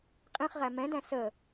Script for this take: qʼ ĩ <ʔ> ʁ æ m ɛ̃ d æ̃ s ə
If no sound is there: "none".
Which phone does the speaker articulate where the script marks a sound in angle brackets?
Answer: χ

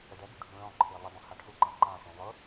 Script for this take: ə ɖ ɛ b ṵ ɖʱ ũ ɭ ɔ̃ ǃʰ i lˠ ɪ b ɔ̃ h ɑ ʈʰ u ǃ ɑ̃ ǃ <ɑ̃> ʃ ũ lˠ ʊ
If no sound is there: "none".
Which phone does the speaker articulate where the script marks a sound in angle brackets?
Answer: ɑ̃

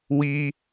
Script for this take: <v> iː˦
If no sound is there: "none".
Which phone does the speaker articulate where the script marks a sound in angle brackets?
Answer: w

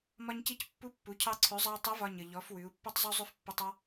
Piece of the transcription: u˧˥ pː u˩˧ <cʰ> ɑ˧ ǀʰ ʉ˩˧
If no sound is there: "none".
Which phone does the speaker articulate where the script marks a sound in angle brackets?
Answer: cʰ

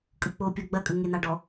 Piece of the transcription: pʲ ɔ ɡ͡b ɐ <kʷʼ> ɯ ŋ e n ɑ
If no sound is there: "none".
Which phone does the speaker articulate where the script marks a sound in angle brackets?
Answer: kʼ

